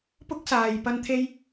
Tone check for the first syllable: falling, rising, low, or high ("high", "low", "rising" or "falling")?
high